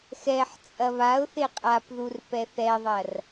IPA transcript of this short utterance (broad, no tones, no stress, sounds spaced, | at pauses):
x ɛ ħ t͡sʼ ɐ β a ʊ̯ θ e qʼ a p ð u r p ɛ θ ɛ ðˤ ɐ r